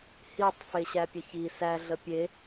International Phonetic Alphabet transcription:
h i tˤ f e ɕ æ pʲ ɐ ç i s æ ɮ ə pʲ e

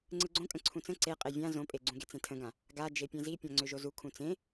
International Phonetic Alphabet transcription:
ŋ͡ǀ ɯ ɡ͡ǀ õ kʼ ə̃ ǀʰ ũ t͡s ə̃ ǀ e qʼ e vʲ ã z õ pʼ e ɡ͡ǀ ũ ɡ e t͡s ẽ tʰ ə̃ ɡ ã | ɡ a d͡ʒ e pʲ ẽ z i pʲ ã ŋ͡ǀ ø ʒ o z u kʰ ũ t͡s ẽ

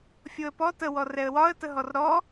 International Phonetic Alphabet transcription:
fʲ o ə̯ p ɔ t ə w ɔ r ɛ ə̯ w ɒ ə̯ t ə ɦ ɔ r ɾ ɔ

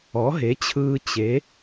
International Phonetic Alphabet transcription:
ɔ˩˥ ɦ e˩˥ t͡ɕʰ ɯː˧ t͡ɕ e˩˥

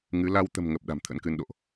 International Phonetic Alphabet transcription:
ŋ ɨ˨˦ l a˧ w t̪ ə̤˨˩ m ŋ ə˨˩ p̚ ɗ a̤˨˩ m t̪ʰ ə̰˧˥ n k ɨ˧ n ɗ o̰˧˨ ʔ

